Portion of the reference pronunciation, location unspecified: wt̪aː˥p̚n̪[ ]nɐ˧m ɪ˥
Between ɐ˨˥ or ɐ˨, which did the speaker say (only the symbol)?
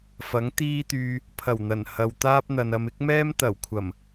ɐ˨